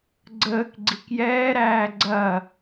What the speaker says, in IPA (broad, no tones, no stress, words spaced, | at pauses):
ɡ͡ǀəːk ɡ͡ǀikjɛːɾæː ɡ͡ǀɐ